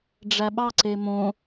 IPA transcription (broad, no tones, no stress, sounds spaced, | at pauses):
ɖ͡ʐ æ ɓ ɑ ǀ e m õ